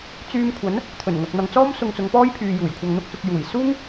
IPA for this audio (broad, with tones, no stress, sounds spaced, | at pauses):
t͡s yː˧ m kʷʰ ɐ˨˥ n | t̪ʰ ɵ˨˩ n ŋ ɐ˨ k̚ n̪ ɐ˨ ŋ t͡s ɔː˥ m s ʊ˧ ŋ t͡s ʊ˨˧ ŋ p ɔː˥ j pʰ yː˨ j uː˨˩ j kʷʰ ɐ˧ ŋ n̪ ʊ˥ k̚ s ʊ˧ k̚ j uː˨˩ j s uː˥ ŋ